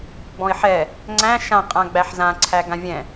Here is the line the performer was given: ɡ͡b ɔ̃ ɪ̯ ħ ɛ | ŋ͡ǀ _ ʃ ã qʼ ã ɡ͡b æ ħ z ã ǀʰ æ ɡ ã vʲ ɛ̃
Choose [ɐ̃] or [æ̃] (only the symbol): æ̃